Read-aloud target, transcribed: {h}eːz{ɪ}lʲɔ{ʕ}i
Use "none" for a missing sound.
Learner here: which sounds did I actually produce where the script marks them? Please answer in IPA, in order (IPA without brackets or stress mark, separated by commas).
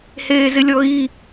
h, ɪ, ɣ